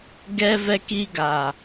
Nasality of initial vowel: oral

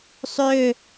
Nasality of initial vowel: oral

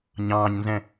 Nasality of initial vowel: nasal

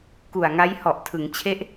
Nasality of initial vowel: oral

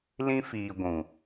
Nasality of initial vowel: nasal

